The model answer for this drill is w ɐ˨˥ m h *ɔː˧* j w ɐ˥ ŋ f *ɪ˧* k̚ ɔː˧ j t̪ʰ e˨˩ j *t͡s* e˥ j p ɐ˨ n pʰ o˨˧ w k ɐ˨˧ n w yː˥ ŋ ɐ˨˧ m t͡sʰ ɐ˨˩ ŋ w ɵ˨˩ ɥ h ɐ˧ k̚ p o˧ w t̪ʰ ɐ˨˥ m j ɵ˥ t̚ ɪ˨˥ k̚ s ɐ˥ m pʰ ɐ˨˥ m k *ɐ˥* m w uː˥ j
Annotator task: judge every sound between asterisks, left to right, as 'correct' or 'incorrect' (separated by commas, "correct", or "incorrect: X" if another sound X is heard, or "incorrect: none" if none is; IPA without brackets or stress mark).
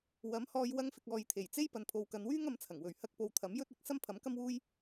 correct, correct, correct, correct